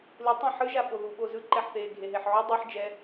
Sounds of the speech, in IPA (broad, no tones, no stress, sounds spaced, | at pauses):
l ɯ tˤ ã ħ ɯ ʒ a ɓ o ð u ɓ o z ɯ ǃ ɛ ħ θ eː ɡʱ e ɦ e ħ ʕ u dˤ ɯ ħ d͡ʒ ɛ